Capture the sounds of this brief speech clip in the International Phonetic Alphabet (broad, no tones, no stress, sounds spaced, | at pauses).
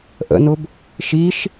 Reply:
ʔ ə̰ n ʊ b | ʃ i ʃ